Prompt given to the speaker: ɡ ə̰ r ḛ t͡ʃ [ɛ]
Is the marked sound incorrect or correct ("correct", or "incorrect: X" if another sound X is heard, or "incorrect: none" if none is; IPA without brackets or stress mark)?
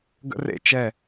correct